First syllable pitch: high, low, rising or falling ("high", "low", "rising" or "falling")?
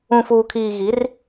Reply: low